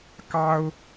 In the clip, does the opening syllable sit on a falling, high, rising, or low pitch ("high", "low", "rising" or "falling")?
high